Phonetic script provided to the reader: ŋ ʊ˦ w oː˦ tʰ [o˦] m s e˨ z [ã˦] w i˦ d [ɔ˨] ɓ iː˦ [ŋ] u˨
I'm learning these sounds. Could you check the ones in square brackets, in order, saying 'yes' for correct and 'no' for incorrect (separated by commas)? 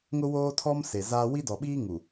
no, no, yes, yes